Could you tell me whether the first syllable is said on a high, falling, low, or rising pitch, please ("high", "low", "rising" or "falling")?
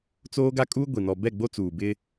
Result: high